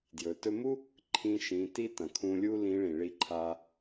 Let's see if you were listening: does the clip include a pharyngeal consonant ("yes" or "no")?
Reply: no